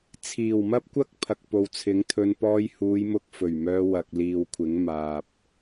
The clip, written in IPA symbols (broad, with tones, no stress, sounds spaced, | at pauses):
t͡sʰ iː˨˩ w m ɐ˥ p̚ kʷ ɐ˥ k̚ pʰ ɐ˨ k̚ p o˨ w t͡sʰ ɪ˨˥ ŋ t̪ʰ ɵ˧ n p ɔː˧ j h uː˨˧ j m ʊ˧ k̚ f ɵ˨˩ ɥ m œː˧ w ɐ˨ k̚ l iː˨ w kʷʰ ɪ˨˥ ŋ m aː˨ p̚